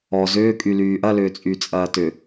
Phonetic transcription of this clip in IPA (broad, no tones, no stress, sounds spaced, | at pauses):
ɔ z ʏː kʼ y l yː ʔ ɐ l ʏː t͡sʼ y t͡sʼ ɐː t ʏ